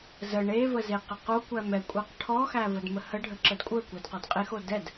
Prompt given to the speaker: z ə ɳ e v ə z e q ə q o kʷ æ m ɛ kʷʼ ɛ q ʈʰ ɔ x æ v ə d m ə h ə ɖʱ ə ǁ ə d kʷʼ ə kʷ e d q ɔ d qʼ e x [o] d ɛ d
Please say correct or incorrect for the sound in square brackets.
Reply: correct